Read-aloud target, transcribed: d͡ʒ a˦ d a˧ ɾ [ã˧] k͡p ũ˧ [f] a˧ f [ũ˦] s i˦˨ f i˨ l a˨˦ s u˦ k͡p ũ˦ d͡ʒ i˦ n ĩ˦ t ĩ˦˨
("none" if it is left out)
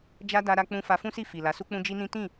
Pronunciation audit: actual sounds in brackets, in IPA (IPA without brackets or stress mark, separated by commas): a˧, f, ũ˦